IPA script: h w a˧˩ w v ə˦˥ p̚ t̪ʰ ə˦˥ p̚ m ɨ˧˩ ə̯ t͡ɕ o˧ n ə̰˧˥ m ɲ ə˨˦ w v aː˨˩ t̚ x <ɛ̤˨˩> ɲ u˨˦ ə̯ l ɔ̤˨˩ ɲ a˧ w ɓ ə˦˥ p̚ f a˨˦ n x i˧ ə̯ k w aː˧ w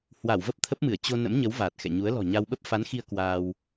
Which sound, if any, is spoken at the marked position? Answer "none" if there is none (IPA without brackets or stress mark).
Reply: ɛ̰˧˨